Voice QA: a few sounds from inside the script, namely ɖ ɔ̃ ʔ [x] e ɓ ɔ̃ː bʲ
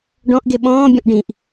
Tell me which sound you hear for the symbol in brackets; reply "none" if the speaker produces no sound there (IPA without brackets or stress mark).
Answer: ɡ